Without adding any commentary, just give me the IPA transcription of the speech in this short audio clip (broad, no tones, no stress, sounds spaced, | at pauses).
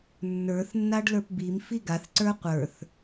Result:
nː ə˞ θ nː a ɖ l ə˞ p b i m f i ɡ a θ ǀ ə˞ qʷ ə˞ θ